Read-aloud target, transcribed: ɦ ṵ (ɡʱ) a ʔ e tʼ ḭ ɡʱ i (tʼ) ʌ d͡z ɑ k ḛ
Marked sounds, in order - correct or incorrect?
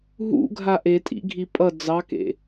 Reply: correct, incorrect: pʼ

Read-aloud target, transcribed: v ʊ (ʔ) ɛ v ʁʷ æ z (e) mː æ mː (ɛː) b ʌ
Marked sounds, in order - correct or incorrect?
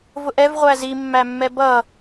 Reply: correct, incorrect: i, incorrect: ɛ

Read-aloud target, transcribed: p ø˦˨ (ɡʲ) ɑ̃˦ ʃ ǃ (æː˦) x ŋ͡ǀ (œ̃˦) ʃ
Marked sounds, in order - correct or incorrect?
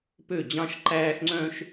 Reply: incorrect: d͡ʑ, correct, correct

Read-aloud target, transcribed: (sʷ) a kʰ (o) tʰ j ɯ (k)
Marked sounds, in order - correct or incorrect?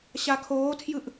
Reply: incorrect: ɕ, incorrect: oː, incorrect: ʔ

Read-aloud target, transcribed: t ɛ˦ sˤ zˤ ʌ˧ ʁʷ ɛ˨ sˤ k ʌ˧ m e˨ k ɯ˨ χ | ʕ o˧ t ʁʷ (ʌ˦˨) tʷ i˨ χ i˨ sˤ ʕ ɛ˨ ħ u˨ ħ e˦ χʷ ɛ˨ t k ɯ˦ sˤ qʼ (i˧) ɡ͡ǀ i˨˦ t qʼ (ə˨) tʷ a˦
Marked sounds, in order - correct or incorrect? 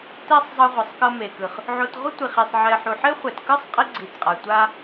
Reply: incorrect: ʌ˦, correct, incorrect: a˨

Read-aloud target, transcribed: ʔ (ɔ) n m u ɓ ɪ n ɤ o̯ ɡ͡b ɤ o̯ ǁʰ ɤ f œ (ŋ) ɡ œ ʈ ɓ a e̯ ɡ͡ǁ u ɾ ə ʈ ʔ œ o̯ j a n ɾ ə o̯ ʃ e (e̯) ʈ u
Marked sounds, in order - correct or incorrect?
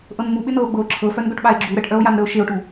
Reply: incorrect: ɤ, incorrect: n, incorrect: o̯

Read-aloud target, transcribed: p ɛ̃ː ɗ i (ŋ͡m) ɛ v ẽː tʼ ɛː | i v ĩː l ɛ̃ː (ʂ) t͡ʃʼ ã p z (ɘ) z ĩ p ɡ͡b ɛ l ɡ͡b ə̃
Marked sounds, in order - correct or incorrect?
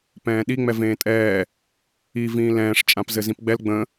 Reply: correct, correct, correct

